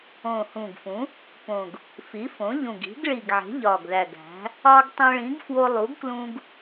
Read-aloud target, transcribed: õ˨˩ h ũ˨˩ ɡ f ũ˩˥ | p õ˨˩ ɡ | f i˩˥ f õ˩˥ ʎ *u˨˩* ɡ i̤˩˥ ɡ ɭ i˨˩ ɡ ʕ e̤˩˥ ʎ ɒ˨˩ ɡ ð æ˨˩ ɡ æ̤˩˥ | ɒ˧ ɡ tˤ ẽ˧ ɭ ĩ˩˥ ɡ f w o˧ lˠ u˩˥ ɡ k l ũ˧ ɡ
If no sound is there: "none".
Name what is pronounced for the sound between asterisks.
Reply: ũ˨˩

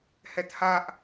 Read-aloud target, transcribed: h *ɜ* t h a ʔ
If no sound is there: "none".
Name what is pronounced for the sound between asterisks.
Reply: ɛ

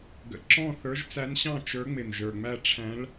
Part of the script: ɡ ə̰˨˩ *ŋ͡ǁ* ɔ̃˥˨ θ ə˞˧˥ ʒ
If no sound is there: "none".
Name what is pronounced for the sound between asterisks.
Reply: ǁ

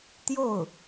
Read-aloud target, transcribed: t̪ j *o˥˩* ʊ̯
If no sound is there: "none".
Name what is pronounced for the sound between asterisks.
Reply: o˥˩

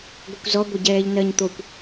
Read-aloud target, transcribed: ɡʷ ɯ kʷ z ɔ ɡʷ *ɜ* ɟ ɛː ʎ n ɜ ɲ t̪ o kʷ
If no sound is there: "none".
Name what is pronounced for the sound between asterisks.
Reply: ɛ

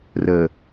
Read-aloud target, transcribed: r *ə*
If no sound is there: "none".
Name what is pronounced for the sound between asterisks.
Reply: ə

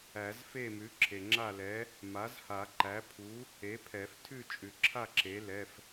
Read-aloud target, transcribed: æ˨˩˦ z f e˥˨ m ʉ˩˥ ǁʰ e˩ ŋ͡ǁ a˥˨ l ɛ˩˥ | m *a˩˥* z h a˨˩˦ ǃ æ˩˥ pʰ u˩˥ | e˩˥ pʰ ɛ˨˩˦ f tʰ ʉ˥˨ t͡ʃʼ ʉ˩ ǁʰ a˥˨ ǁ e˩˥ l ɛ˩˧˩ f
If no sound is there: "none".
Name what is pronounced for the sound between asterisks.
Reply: a˩˥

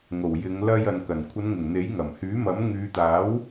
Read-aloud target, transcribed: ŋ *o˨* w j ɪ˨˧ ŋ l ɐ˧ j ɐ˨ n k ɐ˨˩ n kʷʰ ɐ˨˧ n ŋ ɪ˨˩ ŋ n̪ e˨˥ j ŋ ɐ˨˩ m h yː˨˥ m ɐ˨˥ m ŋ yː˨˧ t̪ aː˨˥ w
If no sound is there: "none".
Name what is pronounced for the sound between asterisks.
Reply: o˨˩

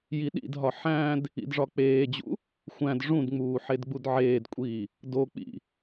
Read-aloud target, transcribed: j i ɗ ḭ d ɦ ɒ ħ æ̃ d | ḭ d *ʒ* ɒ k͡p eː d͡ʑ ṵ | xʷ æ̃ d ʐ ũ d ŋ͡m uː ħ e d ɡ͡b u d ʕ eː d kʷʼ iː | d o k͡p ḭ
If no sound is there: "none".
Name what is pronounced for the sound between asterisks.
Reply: ʐ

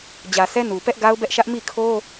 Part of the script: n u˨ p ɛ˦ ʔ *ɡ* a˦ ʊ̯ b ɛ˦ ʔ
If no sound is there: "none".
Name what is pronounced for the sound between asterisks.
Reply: ɡ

